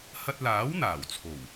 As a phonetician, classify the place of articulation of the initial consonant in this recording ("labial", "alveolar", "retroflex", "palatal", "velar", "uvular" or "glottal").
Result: glottal